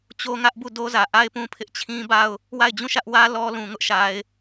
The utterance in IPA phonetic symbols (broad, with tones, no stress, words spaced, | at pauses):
t͡ɕo˦ŋä˦ʔ bu˦˨do˦zä˨ ʔa˦ɪ̯pũ˦pʰɪ˦ʔt͡ɕʰĩ˦ ba˦˨ʊ̯ | wa˦˨ɪ̯d͡ʑũ˦˨ʃä˦ʔwä˦ lɔ˦lũ˨ ŋʊ˦ʔʃa˨ɪ̯